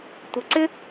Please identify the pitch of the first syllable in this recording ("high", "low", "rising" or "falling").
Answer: low